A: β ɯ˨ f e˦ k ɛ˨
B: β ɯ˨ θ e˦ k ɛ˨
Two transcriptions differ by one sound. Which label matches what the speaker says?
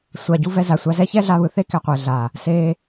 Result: B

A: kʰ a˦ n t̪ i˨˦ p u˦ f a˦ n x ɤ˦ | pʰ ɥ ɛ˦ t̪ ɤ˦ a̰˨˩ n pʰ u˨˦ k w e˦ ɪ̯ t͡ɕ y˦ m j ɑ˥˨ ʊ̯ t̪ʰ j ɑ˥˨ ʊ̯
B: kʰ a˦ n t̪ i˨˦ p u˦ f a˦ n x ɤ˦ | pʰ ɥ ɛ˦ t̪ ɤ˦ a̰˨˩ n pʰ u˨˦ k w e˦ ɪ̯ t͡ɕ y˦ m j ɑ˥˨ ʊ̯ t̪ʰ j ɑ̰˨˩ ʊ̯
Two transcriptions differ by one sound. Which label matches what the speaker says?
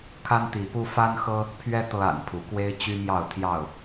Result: A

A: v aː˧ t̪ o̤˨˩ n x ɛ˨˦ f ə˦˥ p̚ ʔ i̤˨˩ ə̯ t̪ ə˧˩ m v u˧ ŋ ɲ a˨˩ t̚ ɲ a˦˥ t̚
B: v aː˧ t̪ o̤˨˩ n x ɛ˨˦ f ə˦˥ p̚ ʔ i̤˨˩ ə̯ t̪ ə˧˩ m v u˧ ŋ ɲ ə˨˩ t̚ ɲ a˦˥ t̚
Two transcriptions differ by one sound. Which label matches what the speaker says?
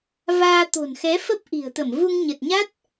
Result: B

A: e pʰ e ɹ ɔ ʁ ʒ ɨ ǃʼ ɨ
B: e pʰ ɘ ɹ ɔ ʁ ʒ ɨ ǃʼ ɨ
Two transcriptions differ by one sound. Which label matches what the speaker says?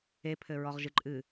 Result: B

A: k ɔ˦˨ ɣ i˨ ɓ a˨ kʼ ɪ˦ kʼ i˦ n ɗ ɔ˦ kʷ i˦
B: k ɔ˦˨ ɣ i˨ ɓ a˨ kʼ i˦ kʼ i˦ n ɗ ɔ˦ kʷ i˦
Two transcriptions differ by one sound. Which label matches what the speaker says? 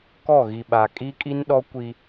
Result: B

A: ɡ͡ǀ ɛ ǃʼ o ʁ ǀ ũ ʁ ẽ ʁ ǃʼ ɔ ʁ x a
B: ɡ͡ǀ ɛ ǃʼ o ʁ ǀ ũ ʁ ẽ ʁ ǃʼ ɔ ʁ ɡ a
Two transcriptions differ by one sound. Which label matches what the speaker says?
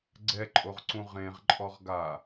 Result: B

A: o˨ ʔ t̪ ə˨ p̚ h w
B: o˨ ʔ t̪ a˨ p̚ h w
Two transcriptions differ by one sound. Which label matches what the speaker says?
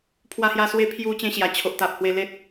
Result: B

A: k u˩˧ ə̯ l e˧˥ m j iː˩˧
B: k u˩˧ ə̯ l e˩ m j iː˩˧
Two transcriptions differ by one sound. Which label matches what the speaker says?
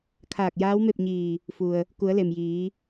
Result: B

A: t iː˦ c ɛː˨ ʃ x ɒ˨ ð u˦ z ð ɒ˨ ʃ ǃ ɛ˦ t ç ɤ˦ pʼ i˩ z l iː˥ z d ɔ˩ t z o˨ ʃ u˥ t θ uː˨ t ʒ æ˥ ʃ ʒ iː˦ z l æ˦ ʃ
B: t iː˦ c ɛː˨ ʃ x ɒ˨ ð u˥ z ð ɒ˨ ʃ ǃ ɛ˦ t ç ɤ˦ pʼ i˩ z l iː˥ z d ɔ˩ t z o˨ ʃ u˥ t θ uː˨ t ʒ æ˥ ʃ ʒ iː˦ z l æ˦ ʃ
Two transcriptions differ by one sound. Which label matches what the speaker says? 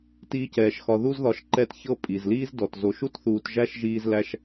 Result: A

